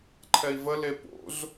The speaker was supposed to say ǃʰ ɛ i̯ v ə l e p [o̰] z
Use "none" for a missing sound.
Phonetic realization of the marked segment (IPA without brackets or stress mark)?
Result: o̰